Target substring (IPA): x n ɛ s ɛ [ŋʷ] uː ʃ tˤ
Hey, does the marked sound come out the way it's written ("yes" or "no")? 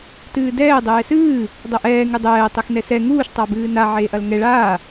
no